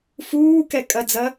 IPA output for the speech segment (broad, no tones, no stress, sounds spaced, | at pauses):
f uː k ɛ kʼ ɐ d͡z ɐ